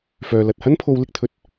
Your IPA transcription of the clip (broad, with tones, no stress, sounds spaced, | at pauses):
f œː˨ l ɐ˨ t̚ h ɐ˥ n pʰ o˧ w l ɪ˧ k̚ t̪ʰ ɵ˨˥ t̚